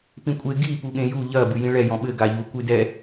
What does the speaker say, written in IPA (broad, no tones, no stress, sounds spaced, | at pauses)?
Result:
p ĩ kʷʼ e ɡ i p u ɠ ẽ j u ʎ ɐ b ɨ j ĩ ɭ ɛ j ɔ̃ ɓ ɘ ɡ a ʎ u kʷ ɨ d ɛ